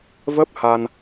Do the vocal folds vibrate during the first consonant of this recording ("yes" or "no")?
yes